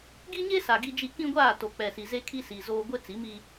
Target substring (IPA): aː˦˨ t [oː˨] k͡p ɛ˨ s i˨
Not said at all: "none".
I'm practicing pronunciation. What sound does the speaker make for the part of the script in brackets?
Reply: o˨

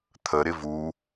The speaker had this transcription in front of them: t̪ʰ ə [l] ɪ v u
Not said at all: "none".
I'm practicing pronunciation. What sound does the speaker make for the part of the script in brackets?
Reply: ɾ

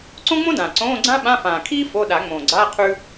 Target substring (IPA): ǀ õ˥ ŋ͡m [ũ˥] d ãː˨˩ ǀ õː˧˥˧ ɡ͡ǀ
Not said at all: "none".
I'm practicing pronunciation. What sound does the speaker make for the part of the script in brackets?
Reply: õ˥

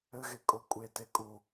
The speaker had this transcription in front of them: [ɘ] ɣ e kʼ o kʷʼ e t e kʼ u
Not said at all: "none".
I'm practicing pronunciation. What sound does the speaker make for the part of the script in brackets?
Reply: ɘ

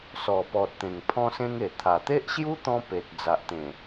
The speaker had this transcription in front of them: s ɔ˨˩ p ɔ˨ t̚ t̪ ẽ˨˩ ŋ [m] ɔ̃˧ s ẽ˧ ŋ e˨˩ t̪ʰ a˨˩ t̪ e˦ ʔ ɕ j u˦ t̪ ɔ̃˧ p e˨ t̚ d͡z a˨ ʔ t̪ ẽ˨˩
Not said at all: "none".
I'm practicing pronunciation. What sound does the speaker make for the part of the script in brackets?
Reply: pʰ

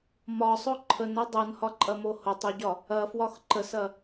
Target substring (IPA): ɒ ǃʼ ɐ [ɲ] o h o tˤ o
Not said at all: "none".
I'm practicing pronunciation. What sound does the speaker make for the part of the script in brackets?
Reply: m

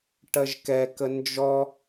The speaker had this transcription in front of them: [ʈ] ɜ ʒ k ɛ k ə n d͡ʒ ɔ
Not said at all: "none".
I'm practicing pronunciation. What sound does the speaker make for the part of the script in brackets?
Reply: ʈ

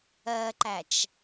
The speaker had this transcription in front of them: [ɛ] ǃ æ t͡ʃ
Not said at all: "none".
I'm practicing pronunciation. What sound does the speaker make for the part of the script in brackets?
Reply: ɜ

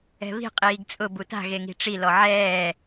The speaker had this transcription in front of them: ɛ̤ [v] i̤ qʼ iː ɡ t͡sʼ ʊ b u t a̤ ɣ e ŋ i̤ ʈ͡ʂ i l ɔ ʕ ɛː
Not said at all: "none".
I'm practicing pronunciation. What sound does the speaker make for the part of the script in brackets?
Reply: β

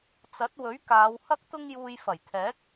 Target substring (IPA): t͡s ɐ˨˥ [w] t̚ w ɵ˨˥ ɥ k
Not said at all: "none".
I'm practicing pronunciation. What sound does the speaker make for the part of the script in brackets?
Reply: none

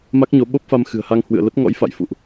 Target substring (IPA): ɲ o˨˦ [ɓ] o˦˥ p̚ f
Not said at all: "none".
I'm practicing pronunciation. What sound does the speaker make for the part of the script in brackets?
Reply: ɓ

